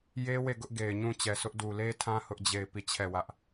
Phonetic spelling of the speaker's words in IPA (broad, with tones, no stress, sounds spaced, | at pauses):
j e˦ w e˦˨ ɡ ʊ˦ ʔ ɡ e˨ ɪ̯ ɲ ũ˦˨ t͡ɕ ɛ˨ s ʊ˦ ʔ d u˨ l e˦ tʰ ã˦ h ʊ˦ ʔ d͡ʑ e˦˨ ɪ̯ p i˦˨ t͡ɕʰ ɛ˦˨ w ä˦ ʔ